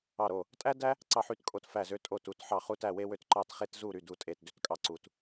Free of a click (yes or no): no